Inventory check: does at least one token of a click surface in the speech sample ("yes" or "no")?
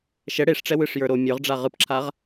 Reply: yes